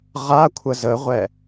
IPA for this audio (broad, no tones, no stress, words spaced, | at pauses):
ʁakʷʰə zəʁʷɛ